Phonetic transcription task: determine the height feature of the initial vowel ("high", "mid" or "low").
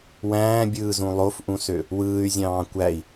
low